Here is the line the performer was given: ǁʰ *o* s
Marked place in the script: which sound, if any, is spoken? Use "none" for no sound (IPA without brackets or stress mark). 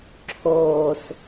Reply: oː